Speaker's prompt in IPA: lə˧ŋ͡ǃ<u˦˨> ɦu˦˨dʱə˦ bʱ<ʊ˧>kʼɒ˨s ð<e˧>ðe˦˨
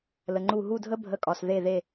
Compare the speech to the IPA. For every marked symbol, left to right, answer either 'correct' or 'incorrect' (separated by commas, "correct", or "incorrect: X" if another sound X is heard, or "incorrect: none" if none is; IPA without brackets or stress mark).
correct, incorrect: ə˧, incorrect: e˦˨